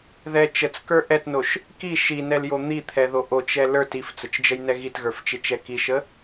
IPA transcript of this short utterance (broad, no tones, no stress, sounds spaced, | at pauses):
ð ɛ t͡ʃ ə t͡s k ə˞ ʔ ɛ t n o ʃ | k i ʃ i n ɛ l j o n̪ i t̪ʰ ɛ ð o ʔ o t͡ʃ ɛ l ə˞ t i f t͡s ə t͡ʃ d͡ʒ ə j n ɛ ɣ i t ɣ ə˞ f t͡ʃ e t͡ʃ ɛ k i ʃ ə